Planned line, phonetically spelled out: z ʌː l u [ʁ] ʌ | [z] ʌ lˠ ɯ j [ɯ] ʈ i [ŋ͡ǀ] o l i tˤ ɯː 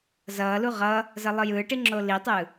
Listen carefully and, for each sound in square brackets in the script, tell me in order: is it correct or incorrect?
correct, correct, incorrect: ɯː, incorrect: ŋ͡ǁ

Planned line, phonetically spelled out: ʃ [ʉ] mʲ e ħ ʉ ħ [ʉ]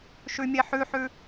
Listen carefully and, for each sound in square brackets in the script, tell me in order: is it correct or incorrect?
correct, correct

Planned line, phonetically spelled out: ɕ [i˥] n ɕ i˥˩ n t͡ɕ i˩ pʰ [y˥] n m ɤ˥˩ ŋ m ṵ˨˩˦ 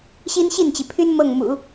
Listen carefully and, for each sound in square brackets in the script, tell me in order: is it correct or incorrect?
correct, correct

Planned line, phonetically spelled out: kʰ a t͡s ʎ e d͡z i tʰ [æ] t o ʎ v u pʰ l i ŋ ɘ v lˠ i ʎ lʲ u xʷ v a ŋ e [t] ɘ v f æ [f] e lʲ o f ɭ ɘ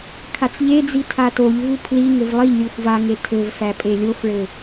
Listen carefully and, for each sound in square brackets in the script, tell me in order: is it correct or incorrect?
incorrect: a, incorrect: tʰ, incorrect: pʼ

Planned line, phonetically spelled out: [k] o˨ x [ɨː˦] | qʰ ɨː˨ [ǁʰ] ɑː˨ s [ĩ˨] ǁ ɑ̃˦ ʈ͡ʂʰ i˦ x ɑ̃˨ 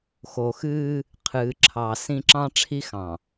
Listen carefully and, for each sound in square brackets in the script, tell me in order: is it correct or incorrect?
incorrect: x, correct, correct, incorrect: ĩ˦

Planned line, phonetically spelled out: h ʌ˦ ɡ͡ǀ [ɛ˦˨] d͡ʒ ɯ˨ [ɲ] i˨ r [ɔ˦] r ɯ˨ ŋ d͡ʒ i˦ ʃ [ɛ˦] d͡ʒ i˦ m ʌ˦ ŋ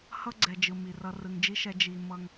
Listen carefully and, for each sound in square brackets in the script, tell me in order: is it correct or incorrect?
incorrect: ɛ˨, incorrect: m, incorrect: ʌ˦, correct

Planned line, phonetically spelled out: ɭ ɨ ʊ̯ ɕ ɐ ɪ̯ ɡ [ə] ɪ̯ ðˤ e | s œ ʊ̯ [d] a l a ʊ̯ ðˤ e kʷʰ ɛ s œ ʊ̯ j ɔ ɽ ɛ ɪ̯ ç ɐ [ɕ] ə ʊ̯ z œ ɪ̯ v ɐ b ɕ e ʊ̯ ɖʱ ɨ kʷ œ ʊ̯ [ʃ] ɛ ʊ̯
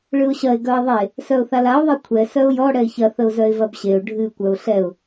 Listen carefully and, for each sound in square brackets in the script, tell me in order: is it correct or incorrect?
incorrect: œ, incorrect: θ, incorrect: θ, incorrect: ɬ

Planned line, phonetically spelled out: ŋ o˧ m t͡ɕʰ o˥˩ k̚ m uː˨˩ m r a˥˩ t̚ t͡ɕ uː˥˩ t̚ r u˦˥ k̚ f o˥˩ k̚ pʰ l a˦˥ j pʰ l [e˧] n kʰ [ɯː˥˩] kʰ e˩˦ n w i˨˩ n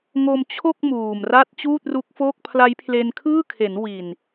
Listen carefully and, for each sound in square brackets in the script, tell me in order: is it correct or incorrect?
correct, correct

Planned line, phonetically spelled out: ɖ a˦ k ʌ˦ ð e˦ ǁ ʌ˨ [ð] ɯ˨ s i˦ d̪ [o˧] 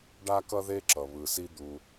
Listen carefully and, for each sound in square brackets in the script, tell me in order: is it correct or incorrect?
incorrect: β, incorrect: u˧

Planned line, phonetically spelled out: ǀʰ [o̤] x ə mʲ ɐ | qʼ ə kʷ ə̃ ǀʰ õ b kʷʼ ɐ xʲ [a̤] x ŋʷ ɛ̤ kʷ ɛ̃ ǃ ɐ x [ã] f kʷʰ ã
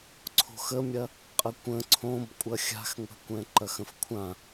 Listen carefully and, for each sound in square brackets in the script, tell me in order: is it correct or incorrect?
correct, correct, incorrect: ə̃

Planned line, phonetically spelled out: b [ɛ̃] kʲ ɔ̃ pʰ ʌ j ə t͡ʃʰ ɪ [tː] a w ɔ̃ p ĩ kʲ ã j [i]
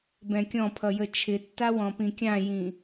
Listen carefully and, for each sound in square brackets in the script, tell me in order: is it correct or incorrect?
correct, correct, incorrect: ĩ

